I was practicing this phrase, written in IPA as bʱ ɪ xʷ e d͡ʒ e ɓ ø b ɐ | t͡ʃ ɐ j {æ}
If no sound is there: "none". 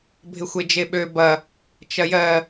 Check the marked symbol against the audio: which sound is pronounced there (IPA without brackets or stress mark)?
ɜ